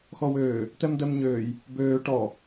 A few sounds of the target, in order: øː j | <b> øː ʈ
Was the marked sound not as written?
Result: no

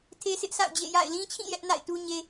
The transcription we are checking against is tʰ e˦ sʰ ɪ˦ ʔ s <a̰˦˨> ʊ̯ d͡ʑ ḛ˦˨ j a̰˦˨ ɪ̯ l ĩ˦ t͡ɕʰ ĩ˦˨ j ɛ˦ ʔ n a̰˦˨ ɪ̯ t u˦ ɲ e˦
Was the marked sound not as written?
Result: no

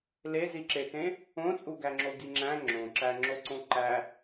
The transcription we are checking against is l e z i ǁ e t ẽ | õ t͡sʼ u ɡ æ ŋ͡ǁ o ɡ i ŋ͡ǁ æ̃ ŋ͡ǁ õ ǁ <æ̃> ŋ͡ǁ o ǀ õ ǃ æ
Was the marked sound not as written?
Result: yes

